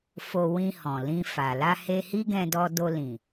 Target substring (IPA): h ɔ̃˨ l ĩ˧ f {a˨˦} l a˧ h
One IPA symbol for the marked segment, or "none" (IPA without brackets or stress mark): a˨